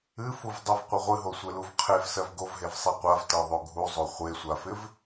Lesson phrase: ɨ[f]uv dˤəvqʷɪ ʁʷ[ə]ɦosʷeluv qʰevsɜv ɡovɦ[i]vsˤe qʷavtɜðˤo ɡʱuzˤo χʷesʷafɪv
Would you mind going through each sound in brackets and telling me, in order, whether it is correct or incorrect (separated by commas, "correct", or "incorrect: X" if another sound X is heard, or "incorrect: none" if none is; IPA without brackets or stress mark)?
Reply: correct, incorrect: ɨ, incorrect: e